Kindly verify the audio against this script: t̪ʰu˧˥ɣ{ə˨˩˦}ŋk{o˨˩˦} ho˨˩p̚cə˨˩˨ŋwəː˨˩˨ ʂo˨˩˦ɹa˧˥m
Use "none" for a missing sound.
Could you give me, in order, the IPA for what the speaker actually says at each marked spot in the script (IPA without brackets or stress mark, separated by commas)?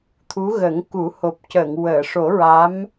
ə˨˩˦, u˨˩˦